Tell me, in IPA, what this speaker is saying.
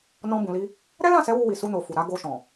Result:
n ɔ̃˧ b ũ˨ l i˧ | ɾ ɛ˦ l ã˦˨ s ɛ˨˦ w u˧ w i˨ s u˧ n o˨ f u˨ ɾ a˨˦ ɡ o˧ ʃ ɔ̃˨

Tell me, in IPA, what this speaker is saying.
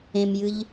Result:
ẽ m j ɨ ʎ

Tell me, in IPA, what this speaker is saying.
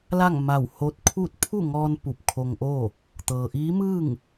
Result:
l a˥˨ ŋ m a˧˩ w h o˧ t̚ kʰ uː˥˨ t̚ pʰ u˥˨ ŋ ɔː˧ n p u˧˩ p̚ kʰ o˧ ŋ ʔ oː˥˨ | t̪ ɤː˩ ʔ iː˧˥ m ɯː˥˨ ŋ

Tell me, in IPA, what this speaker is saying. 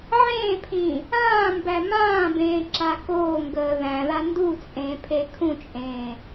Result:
ʕ ẽː pʰ ĩ | ãː m b æ m ãː b ẽː ǁ a k oː ŋ ɡ əː ð æ̃ ð a n d u t͡sʼ ẽː pʰ e kʰ ũ t͡ʃʼ ẽː

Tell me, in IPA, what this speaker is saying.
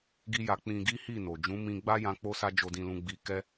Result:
ɡ i˦ j a˧ k͡p ĩ˧ ɡ i˦ h i˦˨ n o˨ d͡ʒ ũ˨˦ m ĩ˧ ɡ͡b a˦ j ã˧ k͡p o˦ s a˦ d͡ʒ o˧ d ĩ˧ l ũ˧ ɡ͡b i˧ k ɛ˦

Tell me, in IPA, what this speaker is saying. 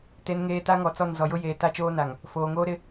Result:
t e˨ n ŋ eː˨ t a˦ ŋ ɔ˨ t͡s ɔ˦˨ n z ɔ˨ j ʊ˦ j eː˨ t a˦ t͡ʃ oː˦ n a˨ ŋ | f oː˨ ŋ oː˦ ɾ ɪ˦

